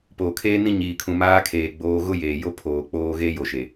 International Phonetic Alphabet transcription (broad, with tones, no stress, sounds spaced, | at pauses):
p oː˨ kʰ eː˦ n ĩ˦ ɲ iː˨ kʰ ũ˨ m aː˦ kʰ eː˨ ɡ͡b oː˦ ɣ ʊ˦ j eː˨ j o˦ pʰ oː˨ k͡p oː˦ ɣ eː˦ j o˨ ʃ e˨